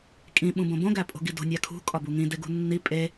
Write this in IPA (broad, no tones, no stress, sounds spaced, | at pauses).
kʼ ĩ ɓ ũ b õ b õ ɡ æ pʼ o̤ ɡ i d o̤ nʲ æ kʰ ṳ kʼ ɒ b u ŋ ĩ d e ɡ ṳ nː i pʼ e